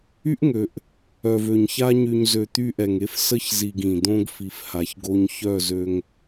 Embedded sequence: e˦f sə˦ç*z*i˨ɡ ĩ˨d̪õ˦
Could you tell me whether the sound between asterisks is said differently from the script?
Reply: no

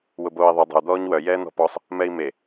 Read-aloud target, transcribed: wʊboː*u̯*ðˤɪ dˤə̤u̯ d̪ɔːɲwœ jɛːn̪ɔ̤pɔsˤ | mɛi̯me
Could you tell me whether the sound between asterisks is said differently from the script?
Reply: yes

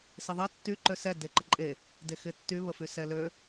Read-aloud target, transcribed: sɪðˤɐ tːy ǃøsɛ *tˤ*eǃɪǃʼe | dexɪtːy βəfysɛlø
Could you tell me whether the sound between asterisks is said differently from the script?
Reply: yes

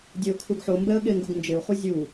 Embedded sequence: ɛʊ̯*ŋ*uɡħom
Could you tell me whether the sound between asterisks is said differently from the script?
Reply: yes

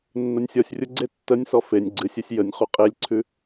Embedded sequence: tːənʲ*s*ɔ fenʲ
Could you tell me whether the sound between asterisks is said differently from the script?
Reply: no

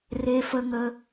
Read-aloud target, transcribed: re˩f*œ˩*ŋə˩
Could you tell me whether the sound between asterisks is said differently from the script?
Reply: yes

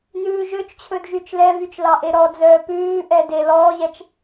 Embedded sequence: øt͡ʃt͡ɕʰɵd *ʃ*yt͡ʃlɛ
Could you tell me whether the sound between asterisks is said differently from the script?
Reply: yes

